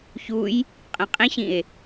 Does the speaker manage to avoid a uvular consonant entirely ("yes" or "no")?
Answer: no